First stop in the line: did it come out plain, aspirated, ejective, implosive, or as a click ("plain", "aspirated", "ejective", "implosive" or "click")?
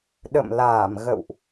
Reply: implosive